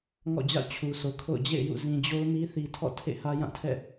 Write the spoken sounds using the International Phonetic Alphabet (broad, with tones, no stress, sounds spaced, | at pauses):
ŋ ɔ̰˦˨ d͡ʑ a̰˦˨ ʊ̯ t͡ɕʰ u˨ s o˨ kʰ o̰˦˨ ʊ̯ d͡ʑ ḛ˦˨ ɪ̯ j ṵ˦˨ z ĩ˨ d͡ʑ o˦ ʊ̯ m i˦ θ i˨ tʰ ɔ̰˦˨ tʰ ḛ˦˨ h ä˦ j ã˦˨ tʰ ɛ̰˦˨